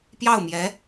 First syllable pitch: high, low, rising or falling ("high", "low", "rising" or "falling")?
falling